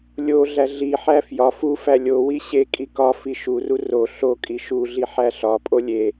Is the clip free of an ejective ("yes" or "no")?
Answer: no